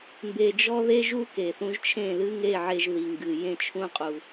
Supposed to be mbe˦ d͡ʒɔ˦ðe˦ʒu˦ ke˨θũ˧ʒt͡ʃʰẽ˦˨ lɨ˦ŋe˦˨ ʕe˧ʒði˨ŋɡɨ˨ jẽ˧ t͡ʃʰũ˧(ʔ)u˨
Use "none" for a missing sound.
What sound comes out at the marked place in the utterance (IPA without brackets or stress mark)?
qʼ